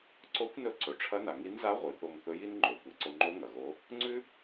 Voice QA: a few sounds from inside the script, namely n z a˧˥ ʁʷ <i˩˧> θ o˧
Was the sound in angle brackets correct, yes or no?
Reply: yes